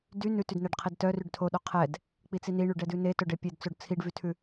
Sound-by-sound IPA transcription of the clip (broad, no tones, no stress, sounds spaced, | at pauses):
d y n ʉ t y d n ɛ ɖ qʰ i d t œ r y ɖ tʰ o ɗ o qʰ ɛ d | k͡p i t͡s i n i ɳ y ɖ ɛ d ʉ n e t œ ɖ e pʲ e d t͡s o ɖ t͡sʰ i ɖ v y tʰ ʉ